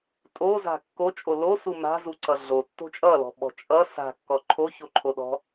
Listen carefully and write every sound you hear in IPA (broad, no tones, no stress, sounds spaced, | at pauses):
tʼ o z a̤ kː o t͡ʃʼ o l o s u m a̤ z u ǀ ʌ ɮ o tː o̤ t͡ʃʼ ʌ l ɔ̤ ɓ ɔ̤ t͡ʃʼ ʌ s a̤ kː ɔ ǃʰ o ç o ǃʰ o ɗ ɔ̤